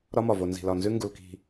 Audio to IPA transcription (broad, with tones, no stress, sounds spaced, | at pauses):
ɾ ɒ˦ m ɒ˨ v o˨ n z i̤˨ l ɒ˨ n z ʉ˦ ŋ ɡ u˨ l k i̤˨